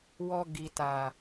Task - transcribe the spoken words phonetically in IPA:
wɔ˧ ɡi˨ta˨

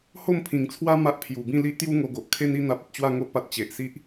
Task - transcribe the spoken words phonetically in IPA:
ho˥˧mpʰĩ˨˩ŋt͡sʰwa˦ ma˦ʔpʰju˨˩ bĩ˥˧li˦ʔt̪ju˦ ŋo˧ɡo˨ʔ kʰe˦ni˦ n̪a˦p̚ə˦t̚ t͡ɕwa˥˧ŋo˦ʔpa˨t̚ t͡ɕe˨ʔsi˦ʔ

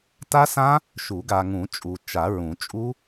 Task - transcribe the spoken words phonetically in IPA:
ta˦˥sã˦˥ | ʃu˨˩˦ɡa˨ŋũ˨˩˦t͡ʃʼu˨ t͡ʃa˨˩˦ɹũ˨˩˦t͡ʃʼu˦˥

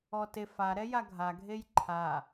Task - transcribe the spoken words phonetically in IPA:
ɔtef aɾɛ jaɡʱaɡʱej ǃʰa

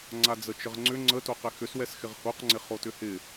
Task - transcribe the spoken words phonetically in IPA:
ŋ͡ǀad͡zət͡ʃəʁŋ͡ǀʏ ŋ͡ǀətoqɪ xʏswɛsxɪʁ hoqŋ͡ǀɪ χotʏhɪ

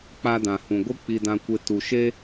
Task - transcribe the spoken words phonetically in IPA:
k͡pa˧dã˨hũ˨ ɡʷɨ˦k͡pi˧dã˧kʷe˧ tu˨ʃe˦

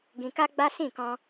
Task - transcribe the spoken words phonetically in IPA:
ɡĩ˧ka˦ɡ͡ba˦ sĩ˦˨kɔ̃˧

